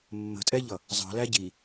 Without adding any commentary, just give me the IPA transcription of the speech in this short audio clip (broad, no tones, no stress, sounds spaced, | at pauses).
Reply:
mː ə̤ tʼ ɛ ʎ ʌ | zˤ ɑ̤ l æ ɟ i